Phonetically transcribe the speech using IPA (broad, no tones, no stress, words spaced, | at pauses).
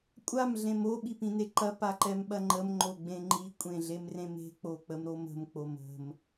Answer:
kʷʼam ɮẽmo ɓipĩneǃɐ paǃɛmɓɐŋ͡ǃəm ŋ͡ǃoɡ͡bẽŋ͡ǃi kʷʼẽɮemrẽme̤ k͡pok͡pəmɾomə̤m k͡pomə̤m